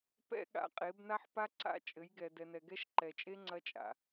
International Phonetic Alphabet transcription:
p ɛ̰˦ ɠ a̰˨ qʼ e˨˦ b n a˦ ħ p a˦ ǀ a̰˦ t͡ʃʼ ɘ˨˦ j ɡ ɛ˨ d ɛ˨ n ɛ˨ ɡ ɛ˦ ʃ ǃ ɛ˨ t͡ʃʼ e˦ ŋ͡ǀ ɐ˦ t͡ʃʼ a̰˨

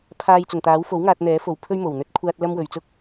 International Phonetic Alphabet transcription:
pʰ aː˧ j t͡s ʊ˨˩ ŋ t̪ aː˨˥ w f o˨˥ w ŋ aː˧ t̚ n̪ ɛː˨˥ f o˨˩ w pʰ ɵ˥ ɥ m o˨˩ w n̪ ɵ˥ t̚ kʷʰ aː˥ t̚ l ɐ˥ m w ɵ˨ ɥ t͡s ʊ˥ k̚

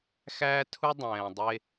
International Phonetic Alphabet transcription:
x æː˦ tʰ u˦ dˤ ɛ̃ː˨ dˤ e˦

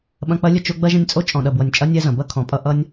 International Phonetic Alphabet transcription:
ɓ ɐ̃˦ k͡p ɐ˥ lʲ ə˦ t͡ʃ o˦ ɡ͡b ɐ˥ ʒ ə̃˦ nʲ t͡sʼ o˥ t͡ʃʼ ɔ̃˨ ɗ ɐ˨ b w ʌ˨ nʲ t͡ʃʼ ɐ˥ nʲ ɛ˦ z ɐ̃˩ b ɐ˥ kʰ ɔ̃˩ pʼ ʌ˦ ʔ ʌ˦ nʲ

